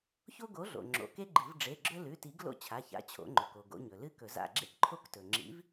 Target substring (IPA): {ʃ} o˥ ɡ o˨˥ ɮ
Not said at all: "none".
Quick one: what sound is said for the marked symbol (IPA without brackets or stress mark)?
ç